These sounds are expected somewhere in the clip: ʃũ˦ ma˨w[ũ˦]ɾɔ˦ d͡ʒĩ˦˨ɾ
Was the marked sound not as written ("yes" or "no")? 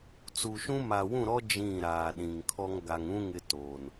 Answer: yes